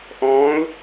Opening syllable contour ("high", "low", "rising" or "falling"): rising